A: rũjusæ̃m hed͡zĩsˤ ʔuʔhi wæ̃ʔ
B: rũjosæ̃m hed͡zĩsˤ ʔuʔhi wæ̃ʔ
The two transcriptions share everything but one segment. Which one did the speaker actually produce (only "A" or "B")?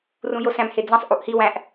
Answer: B